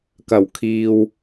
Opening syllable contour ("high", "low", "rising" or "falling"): low